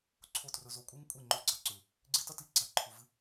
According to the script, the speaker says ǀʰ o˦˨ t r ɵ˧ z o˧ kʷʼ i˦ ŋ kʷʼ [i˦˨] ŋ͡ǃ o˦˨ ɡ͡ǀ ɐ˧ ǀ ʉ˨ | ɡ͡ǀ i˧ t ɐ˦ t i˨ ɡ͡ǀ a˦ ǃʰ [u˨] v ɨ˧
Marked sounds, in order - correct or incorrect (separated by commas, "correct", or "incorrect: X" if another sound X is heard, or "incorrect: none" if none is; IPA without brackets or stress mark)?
correct, correct